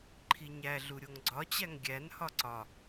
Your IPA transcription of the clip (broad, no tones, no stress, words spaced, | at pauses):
ǃʰiɲæɮu ɾʲoŋɡ͡ǀɒt͡ɕæŋ ɡʲænhɒ ǀɒ